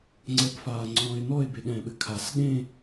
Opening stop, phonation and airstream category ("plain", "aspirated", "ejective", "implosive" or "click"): click